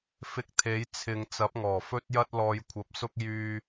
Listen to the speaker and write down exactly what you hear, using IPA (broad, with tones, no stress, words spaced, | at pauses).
fɪ˧k̚ t̪ʰe˨˥j t͡sʰɪ˨ŋ t͡sɐ˨˥p̚ŋɔː˨˩fɵ˥t̚jɐ˥t̚ lɔː˧jkʷʰɐ˧p̚sʊ˥k̚ jyː˧